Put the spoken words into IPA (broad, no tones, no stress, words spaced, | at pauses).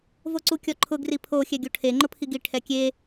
voǀukʲɔǃʰʊ ɡripʰo xʲɛɡʲoʈʰe ŋ͡ǃʊpʰiɡi ʈʰɛkʲe